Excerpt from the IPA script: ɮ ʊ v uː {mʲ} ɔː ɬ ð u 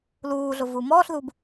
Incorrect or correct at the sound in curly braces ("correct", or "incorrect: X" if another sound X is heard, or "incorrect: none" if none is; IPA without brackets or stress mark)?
incorrect: m